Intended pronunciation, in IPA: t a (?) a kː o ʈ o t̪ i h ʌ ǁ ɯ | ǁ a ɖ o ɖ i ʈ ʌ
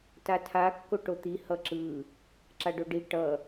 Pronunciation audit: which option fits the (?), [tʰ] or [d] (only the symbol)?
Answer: tʰ